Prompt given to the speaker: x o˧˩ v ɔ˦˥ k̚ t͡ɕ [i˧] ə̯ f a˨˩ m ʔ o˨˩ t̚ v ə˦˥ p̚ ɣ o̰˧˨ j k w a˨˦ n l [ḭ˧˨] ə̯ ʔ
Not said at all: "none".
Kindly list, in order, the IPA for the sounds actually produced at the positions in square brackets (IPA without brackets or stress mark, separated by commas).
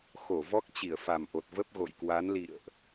i˧˩, ḭ˧˨